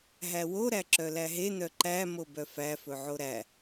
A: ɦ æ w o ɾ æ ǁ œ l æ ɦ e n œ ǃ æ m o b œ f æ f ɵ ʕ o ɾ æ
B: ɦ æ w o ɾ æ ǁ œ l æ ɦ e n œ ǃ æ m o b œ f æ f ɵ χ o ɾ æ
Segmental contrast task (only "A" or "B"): A